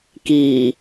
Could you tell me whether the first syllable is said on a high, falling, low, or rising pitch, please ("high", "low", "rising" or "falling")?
low